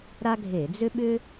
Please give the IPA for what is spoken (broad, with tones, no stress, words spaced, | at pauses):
ɾa˥ɡʱe˧˩˧ d͡zʏ˥ɓʏ˥